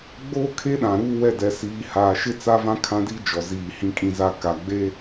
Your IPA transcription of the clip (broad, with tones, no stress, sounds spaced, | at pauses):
ɡ͡b oː˦ kʰ e˦ ɗ ã˨ ɾ uː˦ w ɛ˦˨ d ɛ˨ s iː˨ h aː˨ ʃ ɪ˦ t͡s a˦ v ã˦ kʰ ã˦ d i˦ d͡ʒ ɔ˨ z iː˨ h ĩ˨ kʼ ĩ˨ z a˨ k a˨ ɡ͡b e˦